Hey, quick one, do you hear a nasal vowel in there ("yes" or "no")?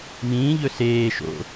yes